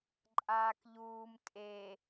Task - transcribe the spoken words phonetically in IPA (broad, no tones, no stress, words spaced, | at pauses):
ǃʼaːkʎuːm tʼe